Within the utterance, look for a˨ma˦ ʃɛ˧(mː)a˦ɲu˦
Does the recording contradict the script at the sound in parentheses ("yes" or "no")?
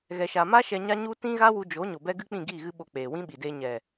yes